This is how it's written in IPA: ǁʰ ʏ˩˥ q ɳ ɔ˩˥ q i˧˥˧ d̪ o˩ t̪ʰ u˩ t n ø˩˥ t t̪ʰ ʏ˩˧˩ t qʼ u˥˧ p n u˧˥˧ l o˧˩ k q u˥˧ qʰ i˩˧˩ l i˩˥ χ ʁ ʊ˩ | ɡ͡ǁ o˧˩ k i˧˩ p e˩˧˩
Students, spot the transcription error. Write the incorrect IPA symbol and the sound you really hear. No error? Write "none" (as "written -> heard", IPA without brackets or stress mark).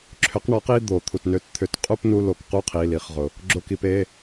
none